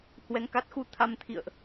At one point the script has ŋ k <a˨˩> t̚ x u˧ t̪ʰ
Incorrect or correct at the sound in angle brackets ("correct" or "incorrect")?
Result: incorrect